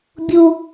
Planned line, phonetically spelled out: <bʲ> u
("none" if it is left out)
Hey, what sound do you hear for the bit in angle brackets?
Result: bʲ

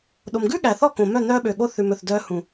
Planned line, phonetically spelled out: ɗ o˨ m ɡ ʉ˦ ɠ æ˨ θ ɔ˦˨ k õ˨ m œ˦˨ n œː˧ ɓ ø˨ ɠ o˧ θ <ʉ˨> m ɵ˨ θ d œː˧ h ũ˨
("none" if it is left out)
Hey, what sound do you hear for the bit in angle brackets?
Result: ʉ˨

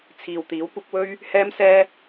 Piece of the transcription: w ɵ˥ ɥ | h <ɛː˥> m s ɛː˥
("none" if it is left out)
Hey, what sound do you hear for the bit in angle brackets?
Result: ɛː˥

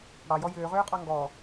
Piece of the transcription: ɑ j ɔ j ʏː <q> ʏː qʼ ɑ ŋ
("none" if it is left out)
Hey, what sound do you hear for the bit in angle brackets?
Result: ʁ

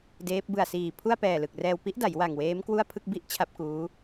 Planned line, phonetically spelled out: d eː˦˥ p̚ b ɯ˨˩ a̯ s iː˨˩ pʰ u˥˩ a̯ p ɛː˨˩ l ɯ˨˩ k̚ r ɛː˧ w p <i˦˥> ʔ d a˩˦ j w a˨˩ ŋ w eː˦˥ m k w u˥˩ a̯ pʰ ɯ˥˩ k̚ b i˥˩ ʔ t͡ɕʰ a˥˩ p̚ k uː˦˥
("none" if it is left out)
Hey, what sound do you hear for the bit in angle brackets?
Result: i˦˥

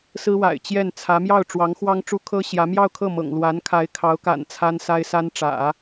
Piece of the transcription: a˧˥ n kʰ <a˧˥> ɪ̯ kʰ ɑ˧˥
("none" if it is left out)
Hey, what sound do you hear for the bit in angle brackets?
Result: a˧˥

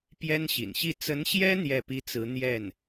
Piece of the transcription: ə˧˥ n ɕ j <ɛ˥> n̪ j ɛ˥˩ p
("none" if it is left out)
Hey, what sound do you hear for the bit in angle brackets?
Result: ɛ˥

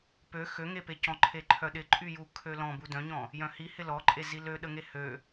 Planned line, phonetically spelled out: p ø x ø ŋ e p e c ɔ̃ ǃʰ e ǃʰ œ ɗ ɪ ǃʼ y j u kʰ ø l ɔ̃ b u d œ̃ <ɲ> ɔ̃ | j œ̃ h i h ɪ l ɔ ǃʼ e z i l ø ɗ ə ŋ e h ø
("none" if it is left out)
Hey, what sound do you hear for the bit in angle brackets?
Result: ɲ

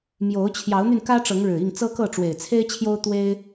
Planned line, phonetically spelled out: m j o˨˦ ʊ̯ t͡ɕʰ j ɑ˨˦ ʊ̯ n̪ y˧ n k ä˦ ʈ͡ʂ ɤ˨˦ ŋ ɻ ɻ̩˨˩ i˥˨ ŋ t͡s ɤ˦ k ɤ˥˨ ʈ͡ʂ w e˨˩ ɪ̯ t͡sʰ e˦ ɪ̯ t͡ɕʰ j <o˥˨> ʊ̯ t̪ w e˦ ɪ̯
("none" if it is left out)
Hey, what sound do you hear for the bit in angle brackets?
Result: o˦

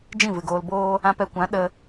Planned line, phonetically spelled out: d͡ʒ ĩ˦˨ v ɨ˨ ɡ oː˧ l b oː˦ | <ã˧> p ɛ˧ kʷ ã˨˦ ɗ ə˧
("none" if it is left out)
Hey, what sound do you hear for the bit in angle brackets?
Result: ã˧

